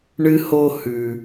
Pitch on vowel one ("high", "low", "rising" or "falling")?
high